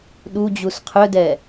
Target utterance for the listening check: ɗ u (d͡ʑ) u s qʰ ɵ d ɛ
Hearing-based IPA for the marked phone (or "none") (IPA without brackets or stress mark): d͡ʑ